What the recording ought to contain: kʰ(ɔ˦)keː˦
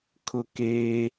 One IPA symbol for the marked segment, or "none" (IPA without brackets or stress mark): ʊ˦